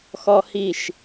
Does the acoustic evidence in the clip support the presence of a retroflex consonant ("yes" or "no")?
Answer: no